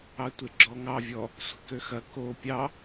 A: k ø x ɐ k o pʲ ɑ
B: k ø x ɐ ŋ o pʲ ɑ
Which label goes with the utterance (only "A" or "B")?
A